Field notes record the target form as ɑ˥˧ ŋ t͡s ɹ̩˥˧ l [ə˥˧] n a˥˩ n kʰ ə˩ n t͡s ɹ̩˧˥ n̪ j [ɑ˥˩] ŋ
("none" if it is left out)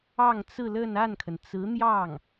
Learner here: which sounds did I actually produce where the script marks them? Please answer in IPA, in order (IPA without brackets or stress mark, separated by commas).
ə˥˧, ɑ˥˩